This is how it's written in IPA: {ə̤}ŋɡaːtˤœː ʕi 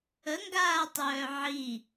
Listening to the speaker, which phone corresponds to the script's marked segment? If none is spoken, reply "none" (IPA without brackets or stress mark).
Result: ə